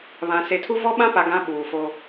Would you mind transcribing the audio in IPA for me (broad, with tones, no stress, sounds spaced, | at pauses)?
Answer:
β ã˨ s e˨ tʰ u˦ v ɔ˦ ɓ ã˦ p a˨ ɡ ã˨˦ ɓ uː˨ f o˦